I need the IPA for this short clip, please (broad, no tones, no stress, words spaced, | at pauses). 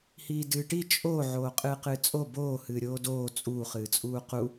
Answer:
hiːdɨːʈi t͡ʃʼo ʕoːqʼɨːqɨːt͡sʼo boː hɨːɾʲoːdoː t͡sʼuː χɨːt͡sʼuːqu